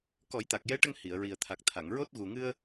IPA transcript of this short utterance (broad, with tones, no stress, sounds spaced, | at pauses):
k ɔ˨˩˦ j t̪ a˨˩ k̚ j ɛ˧˥ ʈ ə˧ ŋ h i˨˩˨ ə̯ ɹ i˨˩ ə̯ t̪ʰ a˨˩ k̚ t̪ʰ a˨˩˨ ŋ ɹ o˦˥ t̚ ɣ u˨˩ ŋ ɨ˧ ə̯